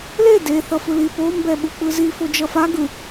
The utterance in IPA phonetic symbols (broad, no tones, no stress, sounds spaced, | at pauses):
l e d e θ ʌ f ɯ l i p o m b ɛ ɓ u k͡p ɯ z i f o d͡ʒ ʌ f a ɡ ɯ